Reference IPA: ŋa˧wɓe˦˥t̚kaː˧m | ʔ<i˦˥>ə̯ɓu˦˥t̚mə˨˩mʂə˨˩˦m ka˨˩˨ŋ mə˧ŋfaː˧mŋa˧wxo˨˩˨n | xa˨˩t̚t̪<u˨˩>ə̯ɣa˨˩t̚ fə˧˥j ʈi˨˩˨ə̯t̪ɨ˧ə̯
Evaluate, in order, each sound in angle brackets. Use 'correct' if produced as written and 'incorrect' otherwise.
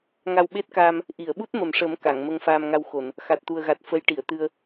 incorrect, correct

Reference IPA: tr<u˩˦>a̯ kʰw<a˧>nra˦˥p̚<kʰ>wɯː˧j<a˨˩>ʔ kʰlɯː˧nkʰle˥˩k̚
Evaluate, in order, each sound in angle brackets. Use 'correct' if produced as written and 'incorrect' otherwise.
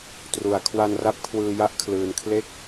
correct, correct, correct, incorrect

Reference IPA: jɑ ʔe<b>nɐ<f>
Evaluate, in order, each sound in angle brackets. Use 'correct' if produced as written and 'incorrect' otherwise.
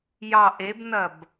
correct, incorrect

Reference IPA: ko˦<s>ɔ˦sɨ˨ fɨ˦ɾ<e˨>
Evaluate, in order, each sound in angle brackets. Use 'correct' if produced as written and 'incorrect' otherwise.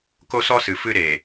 correct, correct

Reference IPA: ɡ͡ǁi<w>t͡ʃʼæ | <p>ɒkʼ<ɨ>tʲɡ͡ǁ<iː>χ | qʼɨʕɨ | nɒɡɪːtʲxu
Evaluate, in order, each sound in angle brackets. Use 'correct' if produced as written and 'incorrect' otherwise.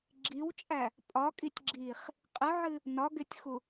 correct, incorrect, incorrect, correct

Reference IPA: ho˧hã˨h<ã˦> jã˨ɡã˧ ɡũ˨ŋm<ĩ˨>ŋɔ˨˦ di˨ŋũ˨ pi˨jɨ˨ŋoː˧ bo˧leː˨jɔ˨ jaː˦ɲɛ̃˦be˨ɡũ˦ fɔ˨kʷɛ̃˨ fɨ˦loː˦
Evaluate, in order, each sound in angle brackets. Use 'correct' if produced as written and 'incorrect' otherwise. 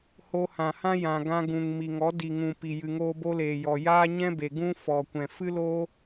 correct, incorrect

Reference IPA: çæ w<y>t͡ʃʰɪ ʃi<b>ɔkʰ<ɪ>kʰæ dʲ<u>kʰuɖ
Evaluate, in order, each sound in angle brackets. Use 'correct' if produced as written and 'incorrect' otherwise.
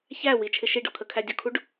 incorrect, incorrect, incorrect, incorrect

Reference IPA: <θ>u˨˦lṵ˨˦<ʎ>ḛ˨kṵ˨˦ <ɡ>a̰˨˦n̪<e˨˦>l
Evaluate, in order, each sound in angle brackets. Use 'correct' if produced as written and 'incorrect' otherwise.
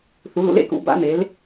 correct, incorrect, incorrect, correct

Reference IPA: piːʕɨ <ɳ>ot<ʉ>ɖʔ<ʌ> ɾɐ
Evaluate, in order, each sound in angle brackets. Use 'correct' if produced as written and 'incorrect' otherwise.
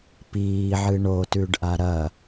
correct, correct, incorrect

